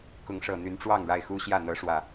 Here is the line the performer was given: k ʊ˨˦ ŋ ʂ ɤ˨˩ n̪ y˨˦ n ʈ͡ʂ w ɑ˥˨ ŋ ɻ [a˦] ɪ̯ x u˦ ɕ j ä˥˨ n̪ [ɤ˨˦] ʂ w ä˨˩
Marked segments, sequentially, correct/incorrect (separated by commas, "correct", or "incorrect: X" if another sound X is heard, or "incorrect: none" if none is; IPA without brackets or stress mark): incorrect: a˥˨, correct